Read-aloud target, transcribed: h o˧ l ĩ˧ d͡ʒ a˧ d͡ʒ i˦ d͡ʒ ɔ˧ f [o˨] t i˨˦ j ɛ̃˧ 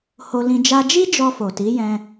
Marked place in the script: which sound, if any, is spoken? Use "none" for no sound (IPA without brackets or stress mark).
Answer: o˨